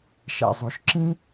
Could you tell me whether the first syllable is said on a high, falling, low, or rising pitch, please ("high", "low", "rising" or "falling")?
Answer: low